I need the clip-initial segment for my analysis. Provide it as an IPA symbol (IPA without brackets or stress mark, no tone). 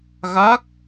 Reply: ɣ